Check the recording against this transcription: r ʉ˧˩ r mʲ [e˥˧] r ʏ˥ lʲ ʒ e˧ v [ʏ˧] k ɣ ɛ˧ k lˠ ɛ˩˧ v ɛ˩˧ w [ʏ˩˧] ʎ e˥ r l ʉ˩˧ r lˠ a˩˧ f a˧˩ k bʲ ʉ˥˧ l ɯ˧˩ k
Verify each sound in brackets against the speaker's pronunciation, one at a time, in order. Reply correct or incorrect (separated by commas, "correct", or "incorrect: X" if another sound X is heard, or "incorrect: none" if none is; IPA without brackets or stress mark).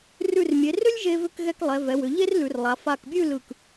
incorrect: e˩˧, correct, correct